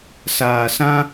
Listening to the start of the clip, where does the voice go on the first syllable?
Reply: low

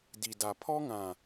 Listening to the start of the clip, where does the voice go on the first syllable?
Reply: low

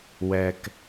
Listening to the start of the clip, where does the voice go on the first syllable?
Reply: low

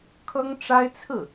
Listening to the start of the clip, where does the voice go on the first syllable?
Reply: high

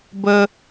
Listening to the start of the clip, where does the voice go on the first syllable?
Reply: high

